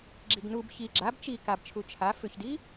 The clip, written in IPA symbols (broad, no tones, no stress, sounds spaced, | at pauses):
ɡ͡ǁ i ɡ n u b ç i ɡ͡ǁ a b t͡ʃ i k a b t͡ʃʰ u t͡ʃʰ a f ʏ ç d i